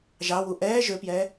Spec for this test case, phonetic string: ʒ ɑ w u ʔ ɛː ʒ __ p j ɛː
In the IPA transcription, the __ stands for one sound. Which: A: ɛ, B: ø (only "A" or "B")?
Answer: B